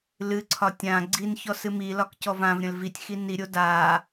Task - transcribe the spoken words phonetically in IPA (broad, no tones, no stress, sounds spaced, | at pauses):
l ɨ ǀʰ ɒ tʲ ã ɡ͡ǀ i n ç ɔ s ɨ m i l ɒ k c ɔ v ã v ɾʲ ə̃ l v i tʲ x i n i ɾʲ o d a